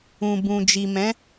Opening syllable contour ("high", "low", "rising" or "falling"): low